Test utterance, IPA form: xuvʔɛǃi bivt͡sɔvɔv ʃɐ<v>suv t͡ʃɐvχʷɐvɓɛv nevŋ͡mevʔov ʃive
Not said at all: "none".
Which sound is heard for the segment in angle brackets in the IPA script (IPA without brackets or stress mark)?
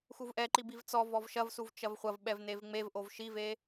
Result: v